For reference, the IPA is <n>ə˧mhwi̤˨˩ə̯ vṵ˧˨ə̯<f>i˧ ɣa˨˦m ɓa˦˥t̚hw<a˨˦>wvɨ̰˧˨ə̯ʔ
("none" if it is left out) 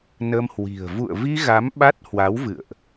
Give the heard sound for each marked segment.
n, v, a˨˦

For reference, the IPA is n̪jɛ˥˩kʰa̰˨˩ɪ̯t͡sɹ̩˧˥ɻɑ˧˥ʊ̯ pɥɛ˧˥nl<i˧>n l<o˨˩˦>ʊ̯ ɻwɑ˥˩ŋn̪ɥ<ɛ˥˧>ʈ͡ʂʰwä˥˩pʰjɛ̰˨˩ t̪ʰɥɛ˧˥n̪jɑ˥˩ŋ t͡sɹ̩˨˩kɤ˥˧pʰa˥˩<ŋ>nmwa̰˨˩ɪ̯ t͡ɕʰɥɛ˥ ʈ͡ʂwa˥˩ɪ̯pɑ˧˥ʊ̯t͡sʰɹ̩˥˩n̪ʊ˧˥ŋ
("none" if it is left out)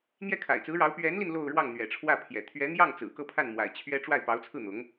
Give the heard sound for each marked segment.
i˧, o˥˧, ɛ̰˨˩, none

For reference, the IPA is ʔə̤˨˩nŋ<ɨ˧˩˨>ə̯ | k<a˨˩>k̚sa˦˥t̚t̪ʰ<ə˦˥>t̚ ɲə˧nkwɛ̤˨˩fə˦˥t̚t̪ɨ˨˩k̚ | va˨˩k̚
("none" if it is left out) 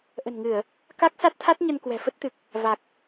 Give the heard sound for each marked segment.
ɨ˧˩˨, a˦˥, a˦˥

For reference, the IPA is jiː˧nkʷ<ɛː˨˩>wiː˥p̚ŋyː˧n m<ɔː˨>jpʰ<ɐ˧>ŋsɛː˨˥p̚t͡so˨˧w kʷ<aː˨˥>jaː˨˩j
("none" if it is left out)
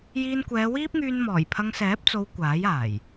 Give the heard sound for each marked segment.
ɛː˨˧, ɔː˨˩, ɐ˧, aː˨˥

